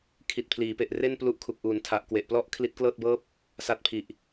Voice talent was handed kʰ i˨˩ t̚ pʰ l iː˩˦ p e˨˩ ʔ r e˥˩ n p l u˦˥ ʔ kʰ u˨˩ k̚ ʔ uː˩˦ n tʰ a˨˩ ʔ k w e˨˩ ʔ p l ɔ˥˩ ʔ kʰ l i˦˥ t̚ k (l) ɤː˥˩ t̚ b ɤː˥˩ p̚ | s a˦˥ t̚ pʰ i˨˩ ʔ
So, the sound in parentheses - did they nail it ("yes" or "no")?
yes